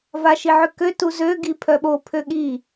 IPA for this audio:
v a ʃ i ʕ ø k ø t u z ø ɡ i pʰ œ ɓ o pʰ ø ɠ i

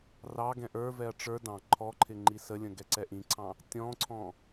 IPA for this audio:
r ɑ ɡ ɛ̃ ʔ ə˞ v ɛ ɐ̯ ʈ͡ʂ ə˞ d ɑ̃ ǃʰ ɔ ǃʰ ɪ ŋ͡ǃ i s ə lʲ ə̃ ɡ ɛ ǀ ɛ ʔ ĩ ǀʰ ɑ̃ | tʲ ɔ̃ ǀʰ ɔ̃

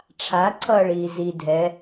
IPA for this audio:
ʈ͡ʂʰ a ǀʰ ʌː ɭ iː z i dʱ ɛ

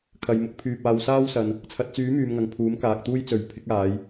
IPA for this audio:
kʰ ɐ˨ j m ʊ˨˥ k̚ pʰ yː˧ p̚ aː˨ w s aː˥ w s ɐ˨ n | t͡sʰ ɐ˨ t̚ t͡s yː˨˥ m yː˨ m ŋ ɐ˨ ŋ pʰ uː˨˥ m k aː˨ k̚ t̪ uː˥ j t͡s ɵ˨˥ ɥ pʰ ɪ˨˥ k̚ aː˨˧ j

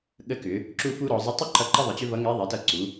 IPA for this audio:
ɠ ə˧˥ k ʏ˩˧ | ǁ u˥ f u˥ ɾ ɔ˩˧ zˤ ə˥ tˤ ʏ˥ ǃ ʌ˧˥ ǃ ʌ˥ ðˤ ə˩˧ t͡ɕ ʏ˥ v ʌ˧˥ ŋ ɛ˧˥ ðˤ i˩˧ t ʌ˧ ǀ u˩˧

